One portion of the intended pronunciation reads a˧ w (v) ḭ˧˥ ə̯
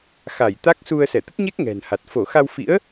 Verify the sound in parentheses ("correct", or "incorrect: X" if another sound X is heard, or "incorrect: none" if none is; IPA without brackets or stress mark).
incorrect: f